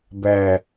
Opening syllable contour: low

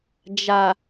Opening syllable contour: low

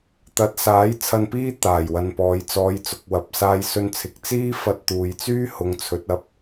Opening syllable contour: rising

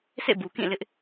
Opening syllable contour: falling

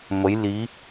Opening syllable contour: rising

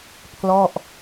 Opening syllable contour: falling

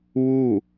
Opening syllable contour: falling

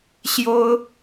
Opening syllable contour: high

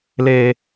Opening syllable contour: low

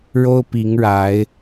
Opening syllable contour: high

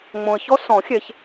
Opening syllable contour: low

